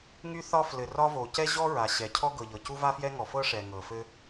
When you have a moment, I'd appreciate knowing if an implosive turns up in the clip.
no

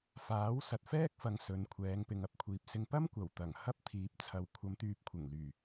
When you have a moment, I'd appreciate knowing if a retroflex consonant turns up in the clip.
no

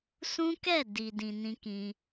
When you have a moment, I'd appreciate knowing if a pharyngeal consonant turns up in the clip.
no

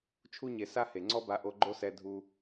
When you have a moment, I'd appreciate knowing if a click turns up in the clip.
yes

